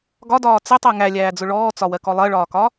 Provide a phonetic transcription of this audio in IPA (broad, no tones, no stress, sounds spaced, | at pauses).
ɡ ɒ d ɒː t͡s ɪ tˤ ɜ ŋ æ lʲ æː d͡z ʊ ɭ ɔː t͡s ɒ w ɜ k ɔ lˠ ɜ ɭ ɒː k ɒ